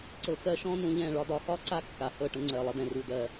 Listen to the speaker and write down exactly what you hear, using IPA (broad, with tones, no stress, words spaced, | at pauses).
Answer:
ǀɤ˧kɜ˦ʃɔ̃˦ nũ˧ʎɛ̃˦˨ ɭɒ˧dɒ˨xɒ˦ ǀa˦kːa˨hɤ˦˨ ʈə̃˧ŋ͡ǀɜ˨lˠə˧d̪ɛ̃˨ ru˨d̪ɜ˨